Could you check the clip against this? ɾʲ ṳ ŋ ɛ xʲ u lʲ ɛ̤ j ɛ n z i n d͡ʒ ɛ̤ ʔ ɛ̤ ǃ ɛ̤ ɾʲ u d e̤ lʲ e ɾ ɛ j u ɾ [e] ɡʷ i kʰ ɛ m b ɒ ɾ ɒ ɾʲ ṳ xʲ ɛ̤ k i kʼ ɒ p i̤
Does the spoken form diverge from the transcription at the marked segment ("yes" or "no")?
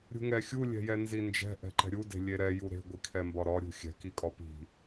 yes